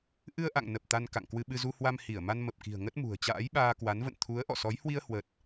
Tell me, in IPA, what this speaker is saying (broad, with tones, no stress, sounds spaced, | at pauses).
ʔ ɨ˧ ə̯ ʔ a̰˧˨ ŋ n ə˨˩ p̚ t̪ a˧ n k a̰˧˨ ŋ k w ɨ˧ ɓ ɨ˧ z u˧ h w a˧ m h i˧˩ ə̯ m a˧ n m ə˨˩ p̚ k i̤˨˩ ə̯ ŋ ə˦˥ t̚ m ṳ˨˩ ə̯ t͡ɕ a̰ː˧˥ j ɓ aː˧ k w a˨˦ n v ə̰˧˨ n t̪ʰ u˨˦ ə̯ ʔ ɔ̰˧˨ s ɔ˨˦ j h w i˧ ə̯ h w ə˨˩ t̚